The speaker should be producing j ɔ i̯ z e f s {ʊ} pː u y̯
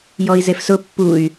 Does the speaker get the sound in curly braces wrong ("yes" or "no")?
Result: no